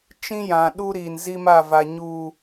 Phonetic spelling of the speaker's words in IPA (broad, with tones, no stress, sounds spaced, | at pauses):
t͡ʃ ĩ˦ j ã˨ ɗ u˦ ɾ i˨ n z i˦ m a˦˨ v a˨ ɲ uː˨